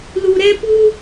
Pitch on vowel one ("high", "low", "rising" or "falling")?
low